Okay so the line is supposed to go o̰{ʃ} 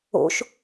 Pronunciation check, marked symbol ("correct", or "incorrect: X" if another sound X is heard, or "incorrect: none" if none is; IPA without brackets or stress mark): correct